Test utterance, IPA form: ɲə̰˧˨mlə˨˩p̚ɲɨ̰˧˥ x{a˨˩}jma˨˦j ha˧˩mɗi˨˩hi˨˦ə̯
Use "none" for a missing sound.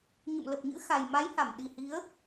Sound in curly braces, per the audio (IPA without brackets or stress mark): a˨˩